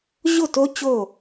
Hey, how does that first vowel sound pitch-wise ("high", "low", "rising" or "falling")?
falling